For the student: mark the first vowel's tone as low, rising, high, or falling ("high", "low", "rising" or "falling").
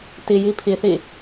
low